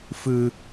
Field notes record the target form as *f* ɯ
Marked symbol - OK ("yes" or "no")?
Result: yes